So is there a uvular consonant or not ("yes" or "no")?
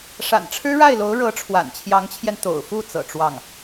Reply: no